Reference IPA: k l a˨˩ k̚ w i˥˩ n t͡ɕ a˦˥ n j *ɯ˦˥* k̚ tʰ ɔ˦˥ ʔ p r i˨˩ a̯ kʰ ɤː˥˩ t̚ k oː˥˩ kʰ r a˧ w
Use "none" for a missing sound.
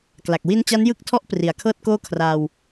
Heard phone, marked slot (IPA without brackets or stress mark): ɯ˦˥